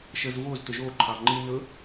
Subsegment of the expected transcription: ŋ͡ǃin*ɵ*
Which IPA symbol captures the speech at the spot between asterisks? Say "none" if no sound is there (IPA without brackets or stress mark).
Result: ɵ